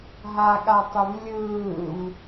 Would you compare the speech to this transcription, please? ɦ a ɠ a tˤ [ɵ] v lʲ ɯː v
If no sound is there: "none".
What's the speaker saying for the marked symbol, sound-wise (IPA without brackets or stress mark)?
ɵ